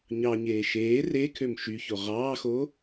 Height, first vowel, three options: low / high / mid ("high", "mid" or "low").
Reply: low